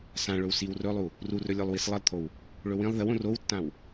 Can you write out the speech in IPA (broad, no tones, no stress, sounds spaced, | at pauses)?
s ã ɭ ɵ w s i w r ɵ lˠ u | r u r ɵ lʲ o lˠ w i s lˠ ə lˠ t̪ʰ o w | ɭ ɵ w ĩ lˠ ð ə w õ r o w tː ã w